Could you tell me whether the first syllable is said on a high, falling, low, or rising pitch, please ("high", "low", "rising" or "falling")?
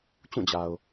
falling